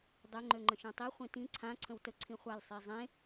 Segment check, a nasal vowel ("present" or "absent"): present